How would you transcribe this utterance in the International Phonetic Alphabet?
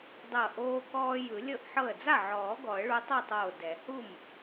dˤɤ˧˩ ʔoː˦kɔː˦ jɯ˨˩˦lʲɤ˥˩ʔħɤ˥˩ə̯ d͡za˥˩ʕɔː˨˩˦ ɡɔ˨˩˦ə̯ɭu˨˦tˤɤ˥˩tˤoː˧˩ dɛ˨˩˦ hu˥˩m

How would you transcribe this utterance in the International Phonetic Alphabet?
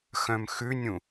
xœ̃mxʉnʲũ

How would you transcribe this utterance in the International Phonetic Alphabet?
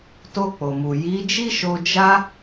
to˧k͡po˨mu˨ ji˨˦d͡ʒi˦ʃo˧ d͡ʒa˧

